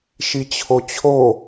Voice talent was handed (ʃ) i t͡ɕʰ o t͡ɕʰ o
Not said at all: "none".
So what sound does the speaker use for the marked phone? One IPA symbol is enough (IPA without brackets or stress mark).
ʃ